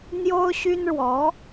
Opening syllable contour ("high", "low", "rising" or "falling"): high